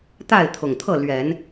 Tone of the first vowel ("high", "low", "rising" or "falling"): falling